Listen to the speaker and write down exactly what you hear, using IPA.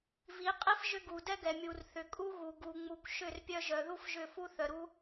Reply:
v i˨˦ qʼ i˦ f ʒ ʏ˦ ɡ u˨ d ɛ˦ ɡ ɛ˨ mʲ u˨ r θ ʏ˨ kʼ u˦ ɣ u˨ ɡ u˨ ŋ͡m u˨ kʷ ʃ ʏ˦˨ r pʲ œ˧ ʒ œ˨ ð u˦ f ʒ ʏ˦˨ f u˦ θ œ˨ ɾ u˦

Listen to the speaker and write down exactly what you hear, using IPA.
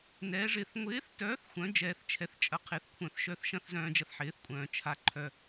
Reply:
n ɛː˨˥ ʐ ɪː˧ θ ŋʷ ɪː˨˥ θ t œː˨˥ θ xʷ œ̃˨˥ d͡ʒ ɛː˧ θ t͡ʃʰ ɛ˧ θ t͡ʃʼ ɐ˨˥ qʰ ɪ˨˥ θ kʷʰ œ̃˧ θ ʃ œ˧ θ ʃ ɐ̃˨˥ θ z œ̃ː˧ d͡ʒ ɐ˧ θ ħ ɪː˨˥ θ kʷʼ œ̃ː˧ t͡ʃʰ a˧ ǃʰ œ˧

